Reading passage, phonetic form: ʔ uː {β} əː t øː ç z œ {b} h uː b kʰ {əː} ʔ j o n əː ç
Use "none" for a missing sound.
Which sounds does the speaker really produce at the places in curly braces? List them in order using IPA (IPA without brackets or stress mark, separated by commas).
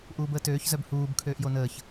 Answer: b, b, øː